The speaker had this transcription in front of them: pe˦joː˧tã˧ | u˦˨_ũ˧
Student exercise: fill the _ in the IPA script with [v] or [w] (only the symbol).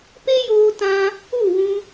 w